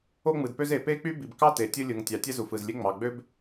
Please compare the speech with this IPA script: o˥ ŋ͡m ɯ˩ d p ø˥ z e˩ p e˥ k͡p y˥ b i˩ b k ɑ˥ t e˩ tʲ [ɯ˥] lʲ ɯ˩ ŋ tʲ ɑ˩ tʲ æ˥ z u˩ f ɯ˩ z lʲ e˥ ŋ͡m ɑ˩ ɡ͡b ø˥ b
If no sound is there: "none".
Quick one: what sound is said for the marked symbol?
ɯ˥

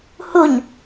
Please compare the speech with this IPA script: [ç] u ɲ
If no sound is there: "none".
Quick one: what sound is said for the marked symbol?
h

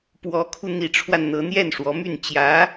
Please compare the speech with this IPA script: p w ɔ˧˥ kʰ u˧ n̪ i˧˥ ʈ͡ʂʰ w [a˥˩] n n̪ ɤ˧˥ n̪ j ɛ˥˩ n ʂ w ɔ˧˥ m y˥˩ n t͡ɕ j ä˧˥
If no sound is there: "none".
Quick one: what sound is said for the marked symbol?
a˧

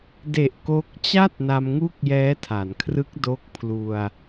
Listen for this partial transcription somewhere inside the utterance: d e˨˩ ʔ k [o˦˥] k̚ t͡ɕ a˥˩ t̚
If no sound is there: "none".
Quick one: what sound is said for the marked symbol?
o˦˥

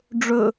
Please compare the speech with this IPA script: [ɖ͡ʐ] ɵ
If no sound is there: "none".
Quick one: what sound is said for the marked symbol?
ɖ͡ʐ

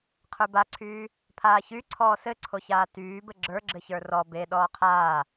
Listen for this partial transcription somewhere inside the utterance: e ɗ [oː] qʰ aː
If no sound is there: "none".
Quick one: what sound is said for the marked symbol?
ɔː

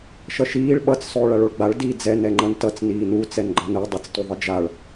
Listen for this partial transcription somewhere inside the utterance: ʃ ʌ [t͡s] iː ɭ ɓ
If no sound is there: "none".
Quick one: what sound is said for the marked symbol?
ʃ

